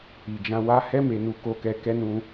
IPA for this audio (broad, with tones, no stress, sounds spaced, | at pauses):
i˨ d͡ʒ ã˧ w a˧ h ɛ˧ m e˨ n u˨ k o˧ k ɛ˧ k ɛ˦ n ũ˧